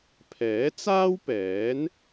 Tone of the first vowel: rising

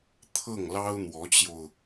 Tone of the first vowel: falling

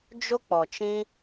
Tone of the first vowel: high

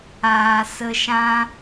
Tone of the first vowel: low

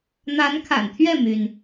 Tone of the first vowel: rising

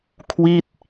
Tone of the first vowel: falling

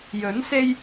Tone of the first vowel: rising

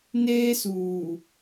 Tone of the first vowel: high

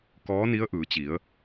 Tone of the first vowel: rising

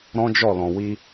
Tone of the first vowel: high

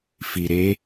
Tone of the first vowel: low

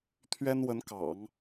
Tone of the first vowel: high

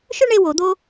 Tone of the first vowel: high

